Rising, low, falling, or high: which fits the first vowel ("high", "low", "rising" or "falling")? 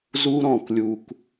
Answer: high